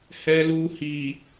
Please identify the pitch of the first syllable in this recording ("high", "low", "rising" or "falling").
low